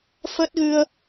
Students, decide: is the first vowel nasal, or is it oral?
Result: oral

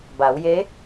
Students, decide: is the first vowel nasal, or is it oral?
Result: oral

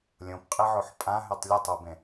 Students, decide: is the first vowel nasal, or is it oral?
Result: nasal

